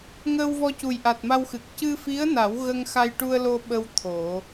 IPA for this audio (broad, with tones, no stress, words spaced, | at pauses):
ŋəː˧wvɔ˧cu˨˩jʔa˨˩t̚ ma˧wxɨ˨˩k̚ cɨ˧fi˧˥ə̯na˨˩˦w ɣə˧ŋxa˧jʈu˧ə̯lo˧ ɓə˧w t̪ʰo˨˩˦